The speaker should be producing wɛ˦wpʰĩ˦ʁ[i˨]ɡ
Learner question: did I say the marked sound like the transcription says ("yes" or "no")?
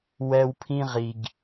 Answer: yes